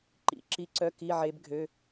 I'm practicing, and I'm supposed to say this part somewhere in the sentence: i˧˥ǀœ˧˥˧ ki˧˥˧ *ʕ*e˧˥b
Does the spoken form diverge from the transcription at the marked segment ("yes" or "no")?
no